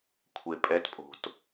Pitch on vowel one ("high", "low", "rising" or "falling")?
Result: low